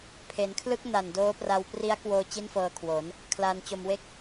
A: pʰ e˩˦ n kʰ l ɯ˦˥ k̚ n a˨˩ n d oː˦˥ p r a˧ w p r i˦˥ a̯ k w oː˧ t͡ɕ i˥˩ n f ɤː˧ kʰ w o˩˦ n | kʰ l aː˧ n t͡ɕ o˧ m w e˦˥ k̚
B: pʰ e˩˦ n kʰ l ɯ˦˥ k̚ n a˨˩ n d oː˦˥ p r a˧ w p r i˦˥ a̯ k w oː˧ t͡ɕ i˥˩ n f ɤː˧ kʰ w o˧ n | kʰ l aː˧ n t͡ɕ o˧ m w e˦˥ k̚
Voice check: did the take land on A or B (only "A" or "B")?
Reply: A